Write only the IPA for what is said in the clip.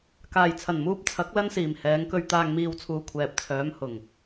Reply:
kaː˨˩jt͡sʰɐ˨˩nmuː˧p̚ t͡sʰɐ˨˥k̚ lɐ˥nsiː˨˩mhɛː˨˥ŋkɵ˧ɥ t̪aː˨ŋmiː˨wt͡sʰuː˨˩ kʷʰɛː˨p̚t͡sʰœː˨˥mhʊ˨˩ŋ

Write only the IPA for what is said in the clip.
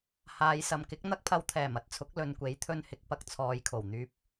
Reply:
haː˨˧jsɐ˨mkɪ˨˥k̚ n̪ɐ˥k̚pʰɐ˧wt̪ʰɛː˨˩m ɐ˨˥t̚t͡sʰʊ˨˥k̚ lɵ˨nkʷe˨˥jt̪ʰɵ˧nhɪ˨k̚ pɐ˧k̚t͡sʰɔː˨jkʰo˨˩w n̪yː˨p̚

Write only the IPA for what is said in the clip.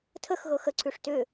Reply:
tʰəxɣɤx əǀʰʉʂ tʏ

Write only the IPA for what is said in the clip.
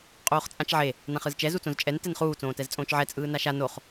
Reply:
qʼoːχt͡sʼãt͡ʃʕe | nãχɯzt͡ʃɛ zut͡sõzt͡ʃʼɛn tɛnχuː t͡sõːtɛzt͡sʼõːt͡ʃʕɛ t͡sʼɯːnaʃa noχ

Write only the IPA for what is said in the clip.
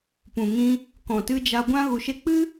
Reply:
pũ˨ŋĩ˧ | kɔ̃˨tɨ˧d͡ʒa˧ ɡʷã˦ ɣu˧ʃe˦ k͡pɨ˦

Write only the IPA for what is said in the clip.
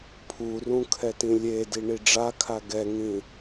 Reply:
pʰurũ kʰɛtĩlʲedi ɳiɖ͡ʐakʰa ɡɛŋĩ

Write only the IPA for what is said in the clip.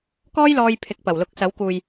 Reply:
kɔː˥jlɔː˧j pʰɪ˨˥k̚pɐ˨˩w lʊ˨˥k̚sɐ˨˥wkuː˨j

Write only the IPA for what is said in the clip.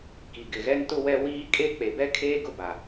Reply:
ki˨ ɡɪ˨ɣɛ˦ntʊ˦wɛ˦ wiː˦kʼe˦ k͡pe˨bɛ˦kʰeː˦ ɡʊ˦ba˨

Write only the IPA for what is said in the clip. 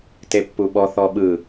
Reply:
tepːuɓɔ θɔɓɯ

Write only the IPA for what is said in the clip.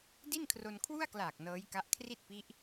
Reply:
di˥˩nkʰro˧nkʰwu˥˩a̯klaː˨˩k̚ nɤː˦˥jka˦˥ʔ kʰri˥˩t̚pi˦˥ʔ

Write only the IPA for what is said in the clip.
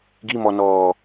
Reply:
ɡimɔnɔː

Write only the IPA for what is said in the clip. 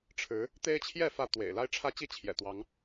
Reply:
ʈ͡ʂʰɻ̩˨˦ | t̪e˦ɪ̯t͡ɕʰjɛ˥˨ fä˥˨t̪wḛ˨˩ɪ̯ la˦ɪ̯ʈ͡ʂʰä˦t͡ɕi˦ t͡ɕʰjɛ̰˨˩t̪wɑ˨˦ŋ

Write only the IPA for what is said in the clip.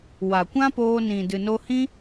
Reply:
wa˨kʷã˦poː˧ nĩ˨dɨ˨no˧hĩ˦

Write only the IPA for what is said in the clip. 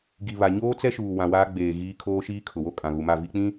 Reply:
ɡi˨βa˨ ɲoː˦t͡sɛ˦ʃuː˨ wã˨waː˦ ɡ͡beː˨ ɣiː˦ kʰoː˦ʃiː˦kʰʊ˨wo˦ kʼã˨ɣu˨ma˦˨ vi˦k͡pĩ˦

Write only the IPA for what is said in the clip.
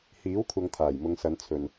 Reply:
hiː˨˥wkʷʰɐ˨˧ŋ t̪ʰaː˨˩jmʊ˨˧ŋsɐ˨˧n t͡sʰɵ˨n

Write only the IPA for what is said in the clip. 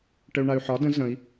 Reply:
ʈəu̯ɳay̯ħɒ də̃ zə̃i̯

